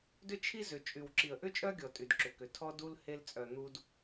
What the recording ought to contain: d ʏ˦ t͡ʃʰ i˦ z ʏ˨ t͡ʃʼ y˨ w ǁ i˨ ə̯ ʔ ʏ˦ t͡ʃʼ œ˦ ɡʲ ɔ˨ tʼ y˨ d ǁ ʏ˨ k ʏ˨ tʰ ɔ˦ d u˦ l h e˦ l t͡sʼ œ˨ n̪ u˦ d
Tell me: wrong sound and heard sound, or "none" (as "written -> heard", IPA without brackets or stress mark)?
none